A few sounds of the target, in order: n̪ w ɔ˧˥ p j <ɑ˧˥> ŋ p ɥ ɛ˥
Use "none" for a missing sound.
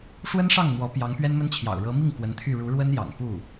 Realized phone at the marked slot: ɑ˧˥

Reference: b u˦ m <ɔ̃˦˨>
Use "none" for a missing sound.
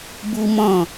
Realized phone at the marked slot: ɔ̃˦˨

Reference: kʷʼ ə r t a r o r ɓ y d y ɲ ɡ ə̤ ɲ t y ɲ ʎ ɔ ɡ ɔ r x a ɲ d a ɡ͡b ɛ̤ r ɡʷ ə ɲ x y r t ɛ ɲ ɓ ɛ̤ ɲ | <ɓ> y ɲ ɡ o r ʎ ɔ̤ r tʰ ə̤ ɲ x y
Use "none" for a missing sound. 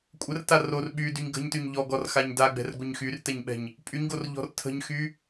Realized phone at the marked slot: pʼ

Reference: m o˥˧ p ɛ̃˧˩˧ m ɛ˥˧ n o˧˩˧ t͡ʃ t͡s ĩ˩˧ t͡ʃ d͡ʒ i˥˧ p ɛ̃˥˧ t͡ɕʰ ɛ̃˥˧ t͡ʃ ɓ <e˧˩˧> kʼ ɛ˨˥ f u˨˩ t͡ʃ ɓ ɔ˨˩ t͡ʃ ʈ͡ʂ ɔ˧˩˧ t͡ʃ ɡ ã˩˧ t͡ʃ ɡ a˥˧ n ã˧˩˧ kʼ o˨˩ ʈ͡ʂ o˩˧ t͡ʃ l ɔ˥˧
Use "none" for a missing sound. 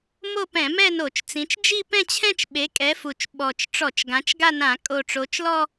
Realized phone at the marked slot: e˨˥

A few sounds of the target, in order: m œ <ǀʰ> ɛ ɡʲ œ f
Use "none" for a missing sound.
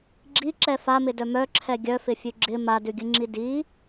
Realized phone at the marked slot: ǁʰ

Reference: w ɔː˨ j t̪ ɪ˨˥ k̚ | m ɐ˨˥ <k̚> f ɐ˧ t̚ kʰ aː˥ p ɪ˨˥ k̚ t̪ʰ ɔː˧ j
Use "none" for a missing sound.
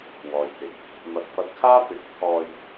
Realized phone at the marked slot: t̚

